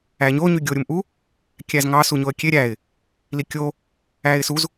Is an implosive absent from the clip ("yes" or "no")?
yes